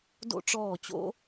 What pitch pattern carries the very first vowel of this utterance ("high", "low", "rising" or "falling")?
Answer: high